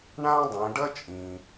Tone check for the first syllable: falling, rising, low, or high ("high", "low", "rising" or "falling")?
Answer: high